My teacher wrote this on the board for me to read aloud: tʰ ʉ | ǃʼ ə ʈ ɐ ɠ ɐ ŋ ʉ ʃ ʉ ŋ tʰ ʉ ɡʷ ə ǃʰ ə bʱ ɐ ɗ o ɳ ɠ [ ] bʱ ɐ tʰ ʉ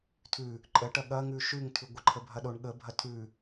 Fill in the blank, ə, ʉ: ə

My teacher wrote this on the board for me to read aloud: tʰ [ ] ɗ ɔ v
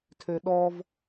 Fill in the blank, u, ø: ø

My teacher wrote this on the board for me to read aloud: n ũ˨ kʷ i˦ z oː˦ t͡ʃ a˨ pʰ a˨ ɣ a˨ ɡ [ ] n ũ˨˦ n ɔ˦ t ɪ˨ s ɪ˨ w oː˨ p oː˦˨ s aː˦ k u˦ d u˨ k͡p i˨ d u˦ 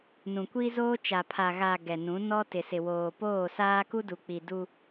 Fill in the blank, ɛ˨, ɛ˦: ɛ˨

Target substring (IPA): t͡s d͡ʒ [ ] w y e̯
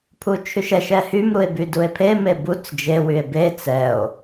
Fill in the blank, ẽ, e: e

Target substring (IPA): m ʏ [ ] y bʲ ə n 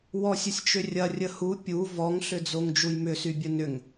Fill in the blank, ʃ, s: s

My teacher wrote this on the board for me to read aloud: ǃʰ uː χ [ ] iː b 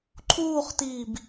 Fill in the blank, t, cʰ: t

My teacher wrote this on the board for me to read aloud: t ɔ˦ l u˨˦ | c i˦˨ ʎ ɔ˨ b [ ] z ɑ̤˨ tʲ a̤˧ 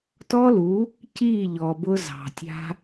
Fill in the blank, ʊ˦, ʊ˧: ʊ˧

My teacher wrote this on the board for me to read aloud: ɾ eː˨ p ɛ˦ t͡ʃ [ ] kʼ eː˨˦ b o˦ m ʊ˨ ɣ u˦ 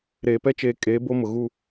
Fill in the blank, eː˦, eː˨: eː˨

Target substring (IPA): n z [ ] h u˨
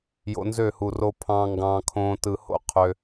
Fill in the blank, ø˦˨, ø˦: ø˦˨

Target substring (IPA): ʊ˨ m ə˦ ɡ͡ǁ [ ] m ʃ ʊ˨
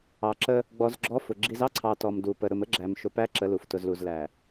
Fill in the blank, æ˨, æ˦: æ˨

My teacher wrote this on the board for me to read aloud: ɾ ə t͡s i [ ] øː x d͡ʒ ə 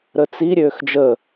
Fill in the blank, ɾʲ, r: ɾʲ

